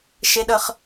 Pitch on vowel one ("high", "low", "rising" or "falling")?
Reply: high